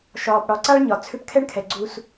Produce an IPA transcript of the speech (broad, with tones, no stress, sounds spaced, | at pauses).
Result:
ʃ ɒː˨ p ɽ ɒ˨˦ ǀ a˦ ɭ ɲ ɒ˨ t͡sʰ ʏ˦ p kʰ ɛ˦ ɳ kʰ ɛ˨ ɡ͡ǀ u˦ s